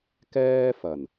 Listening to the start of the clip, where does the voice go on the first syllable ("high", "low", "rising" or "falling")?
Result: high